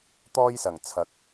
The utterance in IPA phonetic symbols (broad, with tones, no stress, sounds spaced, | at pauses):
t̪ ɔː˥ j s ɐ˨˩ ŋ t͡sʰ ɐ˨˥ k̚